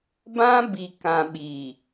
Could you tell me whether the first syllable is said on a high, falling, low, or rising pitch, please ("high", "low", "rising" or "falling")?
high